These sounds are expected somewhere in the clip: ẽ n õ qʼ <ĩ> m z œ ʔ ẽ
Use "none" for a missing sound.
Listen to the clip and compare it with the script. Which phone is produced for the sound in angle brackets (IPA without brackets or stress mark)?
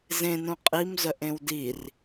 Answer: i